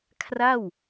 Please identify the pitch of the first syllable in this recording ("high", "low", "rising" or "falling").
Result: falling